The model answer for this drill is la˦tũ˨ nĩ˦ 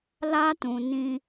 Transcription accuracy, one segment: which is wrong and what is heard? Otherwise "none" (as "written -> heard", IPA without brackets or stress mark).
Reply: none